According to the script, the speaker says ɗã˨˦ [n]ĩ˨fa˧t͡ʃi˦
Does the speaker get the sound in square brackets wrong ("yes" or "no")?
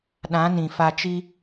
no